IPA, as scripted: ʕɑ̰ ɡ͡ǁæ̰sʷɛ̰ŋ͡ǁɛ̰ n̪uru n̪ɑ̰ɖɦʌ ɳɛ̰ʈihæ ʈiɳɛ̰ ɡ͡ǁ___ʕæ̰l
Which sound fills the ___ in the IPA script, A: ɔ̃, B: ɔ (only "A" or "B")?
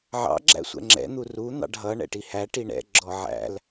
B